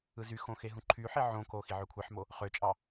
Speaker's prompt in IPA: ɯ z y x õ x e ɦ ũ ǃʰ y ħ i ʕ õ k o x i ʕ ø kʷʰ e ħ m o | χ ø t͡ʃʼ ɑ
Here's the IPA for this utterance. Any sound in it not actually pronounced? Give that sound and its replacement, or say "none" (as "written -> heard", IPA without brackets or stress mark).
none